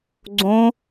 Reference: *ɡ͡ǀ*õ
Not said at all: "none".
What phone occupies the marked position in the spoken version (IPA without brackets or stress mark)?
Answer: ɡ͡ǀ